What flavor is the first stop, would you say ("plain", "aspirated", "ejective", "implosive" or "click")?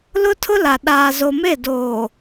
aspirated